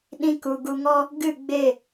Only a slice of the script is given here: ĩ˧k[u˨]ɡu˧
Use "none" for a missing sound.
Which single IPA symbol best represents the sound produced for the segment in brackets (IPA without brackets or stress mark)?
u˨